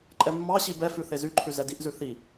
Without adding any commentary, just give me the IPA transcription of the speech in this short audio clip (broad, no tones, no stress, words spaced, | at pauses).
ǃʼɛmːɑɕi bɛfʉ θezyǃʰʉ zɛdiʔzʉ θi